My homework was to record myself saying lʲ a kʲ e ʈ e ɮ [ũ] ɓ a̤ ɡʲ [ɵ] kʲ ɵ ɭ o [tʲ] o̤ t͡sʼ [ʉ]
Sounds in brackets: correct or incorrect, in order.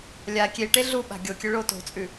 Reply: incorrect, incorrect, incorrect, correct

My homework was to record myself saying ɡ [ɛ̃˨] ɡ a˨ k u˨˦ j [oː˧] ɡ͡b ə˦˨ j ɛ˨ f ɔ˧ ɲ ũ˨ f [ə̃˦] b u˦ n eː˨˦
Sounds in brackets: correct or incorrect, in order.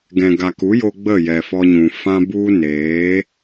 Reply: correct, incorrect, incorrect

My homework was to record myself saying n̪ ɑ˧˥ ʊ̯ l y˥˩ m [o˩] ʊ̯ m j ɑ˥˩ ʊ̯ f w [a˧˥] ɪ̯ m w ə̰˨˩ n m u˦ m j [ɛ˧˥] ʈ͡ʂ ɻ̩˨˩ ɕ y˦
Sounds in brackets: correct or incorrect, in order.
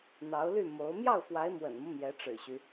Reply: incorrect, correct, correct

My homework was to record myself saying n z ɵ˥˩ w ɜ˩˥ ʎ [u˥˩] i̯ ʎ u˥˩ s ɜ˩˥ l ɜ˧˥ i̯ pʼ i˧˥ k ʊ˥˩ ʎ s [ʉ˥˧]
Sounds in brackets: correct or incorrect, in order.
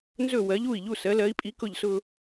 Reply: correct, incorrect

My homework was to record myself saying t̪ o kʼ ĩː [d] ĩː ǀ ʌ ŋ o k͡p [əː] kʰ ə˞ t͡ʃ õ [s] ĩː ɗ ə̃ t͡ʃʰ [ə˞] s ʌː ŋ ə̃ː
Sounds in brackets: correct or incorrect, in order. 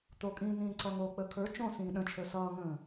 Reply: incorrect, correct, correct, correct

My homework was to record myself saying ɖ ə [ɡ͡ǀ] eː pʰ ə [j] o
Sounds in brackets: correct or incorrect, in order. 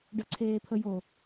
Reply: incorrect, correct

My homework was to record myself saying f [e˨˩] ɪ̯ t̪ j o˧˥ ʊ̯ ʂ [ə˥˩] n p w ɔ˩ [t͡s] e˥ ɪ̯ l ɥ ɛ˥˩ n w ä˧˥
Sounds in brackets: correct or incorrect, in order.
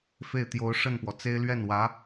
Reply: incorrect, correct, correct

